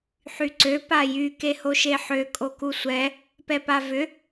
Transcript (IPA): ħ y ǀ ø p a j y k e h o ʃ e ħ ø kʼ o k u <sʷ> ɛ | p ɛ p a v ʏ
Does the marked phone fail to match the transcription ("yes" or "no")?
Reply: no